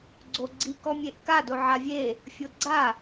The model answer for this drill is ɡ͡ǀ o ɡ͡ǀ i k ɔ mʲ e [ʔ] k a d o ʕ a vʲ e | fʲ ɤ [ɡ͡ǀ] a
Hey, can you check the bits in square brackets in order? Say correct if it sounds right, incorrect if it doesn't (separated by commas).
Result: correct, correct